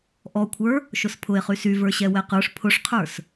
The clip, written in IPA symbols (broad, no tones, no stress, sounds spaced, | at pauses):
ʔ ɔ kʷʰ ə˞ | ʃ ʊ s pʰ ʊ e̯ χ y s y v ə˞ ɕ ɛ w ɛ q ə˞ ʂ pʰ ʊ ʂ qʰ ə˞ s